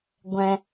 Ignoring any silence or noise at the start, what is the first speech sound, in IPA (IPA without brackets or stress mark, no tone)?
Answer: ɡʷ